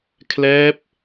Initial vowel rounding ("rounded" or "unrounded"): unrounded